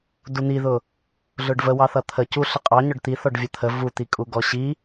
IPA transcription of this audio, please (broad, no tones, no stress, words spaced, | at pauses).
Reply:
dun̪iðʊ | ɮʊɖvəwɑθʌ t̪ʰə cuɬə qʼɑɲɔɖ t̪iθɔɖ vʲət̪ʰə vut̪ikʼu ɡɔɕi